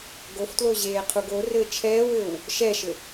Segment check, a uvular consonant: present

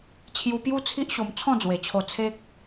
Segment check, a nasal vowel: present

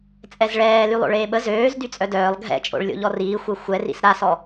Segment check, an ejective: present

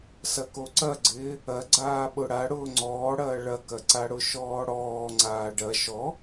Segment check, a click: present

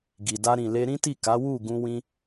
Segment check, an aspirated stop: absent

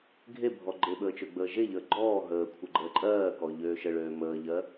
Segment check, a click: present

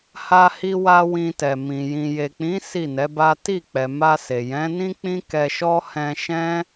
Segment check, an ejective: absent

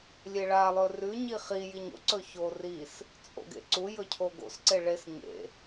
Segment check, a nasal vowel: absent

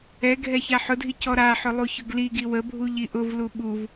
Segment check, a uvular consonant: absent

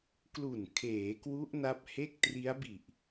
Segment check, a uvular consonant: absent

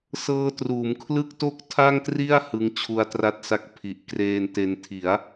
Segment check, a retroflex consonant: absent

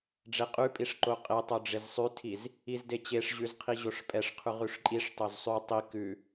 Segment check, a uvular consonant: present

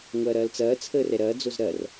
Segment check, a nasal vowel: absent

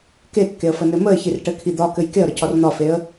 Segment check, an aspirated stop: present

